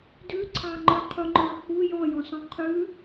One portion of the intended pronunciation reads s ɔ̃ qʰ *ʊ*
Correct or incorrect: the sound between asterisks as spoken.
incorrect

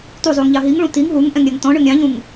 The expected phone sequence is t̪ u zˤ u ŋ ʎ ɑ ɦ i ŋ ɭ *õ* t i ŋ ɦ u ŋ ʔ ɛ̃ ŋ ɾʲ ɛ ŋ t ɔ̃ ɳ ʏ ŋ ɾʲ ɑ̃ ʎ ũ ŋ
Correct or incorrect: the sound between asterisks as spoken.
incorrect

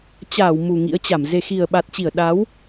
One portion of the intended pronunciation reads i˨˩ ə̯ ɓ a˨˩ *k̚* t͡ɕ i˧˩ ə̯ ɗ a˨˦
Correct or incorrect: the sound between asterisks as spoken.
incorrect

